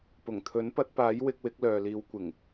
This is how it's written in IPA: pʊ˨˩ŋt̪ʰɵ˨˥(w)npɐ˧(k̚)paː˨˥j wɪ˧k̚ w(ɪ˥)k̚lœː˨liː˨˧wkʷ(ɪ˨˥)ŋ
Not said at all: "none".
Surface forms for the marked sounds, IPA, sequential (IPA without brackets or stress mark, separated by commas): none, t̚, ɪ˨˥, ɪ˨˩